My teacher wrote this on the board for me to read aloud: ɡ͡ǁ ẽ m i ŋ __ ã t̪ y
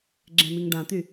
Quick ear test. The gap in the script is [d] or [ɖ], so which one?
ɖ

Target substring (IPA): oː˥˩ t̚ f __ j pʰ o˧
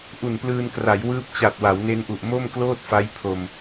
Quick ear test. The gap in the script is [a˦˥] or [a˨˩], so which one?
a˦˥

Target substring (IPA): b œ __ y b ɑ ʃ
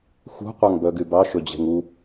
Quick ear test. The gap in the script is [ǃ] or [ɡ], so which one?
ɡ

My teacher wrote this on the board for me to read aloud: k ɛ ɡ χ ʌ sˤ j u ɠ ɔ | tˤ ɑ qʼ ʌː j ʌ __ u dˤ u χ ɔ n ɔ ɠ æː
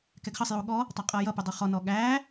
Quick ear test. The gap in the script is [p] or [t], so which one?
p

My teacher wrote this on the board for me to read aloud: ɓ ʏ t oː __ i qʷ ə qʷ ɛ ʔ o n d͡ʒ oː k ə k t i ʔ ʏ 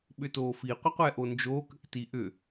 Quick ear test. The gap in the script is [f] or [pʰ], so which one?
f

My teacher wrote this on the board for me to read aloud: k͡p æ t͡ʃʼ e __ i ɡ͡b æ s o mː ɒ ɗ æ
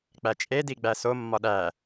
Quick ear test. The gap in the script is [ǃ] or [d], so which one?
d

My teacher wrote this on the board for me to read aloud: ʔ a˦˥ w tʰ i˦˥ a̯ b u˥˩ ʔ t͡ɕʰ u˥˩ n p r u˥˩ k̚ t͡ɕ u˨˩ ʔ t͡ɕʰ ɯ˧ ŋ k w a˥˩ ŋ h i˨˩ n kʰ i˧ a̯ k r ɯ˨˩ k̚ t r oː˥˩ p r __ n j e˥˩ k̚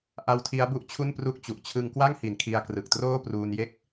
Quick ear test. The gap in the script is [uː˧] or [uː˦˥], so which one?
uː˧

